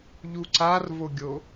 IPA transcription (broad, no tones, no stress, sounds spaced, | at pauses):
ʎ u ǀ a r v o ɡʲ o